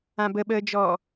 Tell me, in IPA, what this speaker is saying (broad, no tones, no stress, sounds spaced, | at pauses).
ã b ə ɓ əː d͡ʒ ɔ